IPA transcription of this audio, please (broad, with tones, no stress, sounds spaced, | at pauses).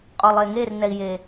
qʼ ɔ˨ lˠ e˨ ŋ e˦˨ r n ɛ˨ i̯ j e˨